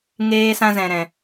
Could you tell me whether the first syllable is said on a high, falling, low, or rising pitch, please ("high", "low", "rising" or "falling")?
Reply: high